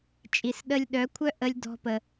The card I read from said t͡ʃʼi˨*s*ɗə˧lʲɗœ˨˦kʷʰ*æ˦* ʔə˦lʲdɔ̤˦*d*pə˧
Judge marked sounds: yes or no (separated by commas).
yes, no, no